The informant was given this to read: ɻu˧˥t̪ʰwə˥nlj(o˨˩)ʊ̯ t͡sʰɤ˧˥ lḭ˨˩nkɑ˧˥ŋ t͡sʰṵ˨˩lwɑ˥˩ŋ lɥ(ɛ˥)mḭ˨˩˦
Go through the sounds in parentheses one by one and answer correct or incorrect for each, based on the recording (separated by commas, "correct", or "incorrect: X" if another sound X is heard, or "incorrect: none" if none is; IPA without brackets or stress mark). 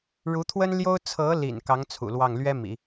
incorrect: o˥, correct